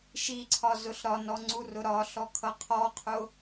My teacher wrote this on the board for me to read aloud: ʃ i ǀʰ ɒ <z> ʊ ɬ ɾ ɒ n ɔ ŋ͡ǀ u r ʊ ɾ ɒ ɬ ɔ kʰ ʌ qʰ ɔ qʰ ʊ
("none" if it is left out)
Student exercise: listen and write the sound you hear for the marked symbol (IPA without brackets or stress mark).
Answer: z